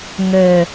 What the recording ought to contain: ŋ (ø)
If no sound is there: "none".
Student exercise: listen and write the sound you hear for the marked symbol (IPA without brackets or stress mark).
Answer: ø